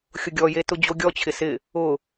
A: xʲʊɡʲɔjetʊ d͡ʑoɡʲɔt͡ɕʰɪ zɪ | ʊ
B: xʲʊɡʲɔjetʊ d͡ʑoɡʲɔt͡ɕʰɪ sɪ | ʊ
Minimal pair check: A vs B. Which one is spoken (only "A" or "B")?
B